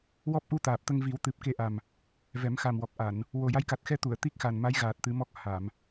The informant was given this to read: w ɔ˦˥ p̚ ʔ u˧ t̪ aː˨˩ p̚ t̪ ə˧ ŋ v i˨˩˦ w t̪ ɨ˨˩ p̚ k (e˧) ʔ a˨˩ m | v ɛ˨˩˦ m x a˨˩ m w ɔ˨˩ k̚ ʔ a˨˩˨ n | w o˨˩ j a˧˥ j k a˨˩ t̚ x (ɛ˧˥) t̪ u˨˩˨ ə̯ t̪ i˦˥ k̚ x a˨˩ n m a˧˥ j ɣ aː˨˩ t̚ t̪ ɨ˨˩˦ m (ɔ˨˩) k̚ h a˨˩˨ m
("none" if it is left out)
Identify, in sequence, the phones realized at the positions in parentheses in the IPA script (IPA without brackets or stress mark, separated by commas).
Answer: e˧, ɛ˧˥, ɔ˦˥